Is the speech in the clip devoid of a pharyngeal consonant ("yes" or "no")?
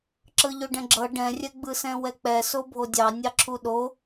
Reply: yes